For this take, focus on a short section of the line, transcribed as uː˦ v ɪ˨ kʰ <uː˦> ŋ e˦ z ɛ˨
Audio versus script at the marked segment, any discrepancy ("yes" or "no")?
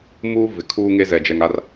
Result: no